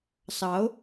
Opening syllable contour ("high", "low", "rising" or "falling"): rising